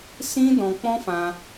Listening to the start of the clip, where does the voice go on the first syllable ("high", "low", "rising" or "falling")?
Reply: high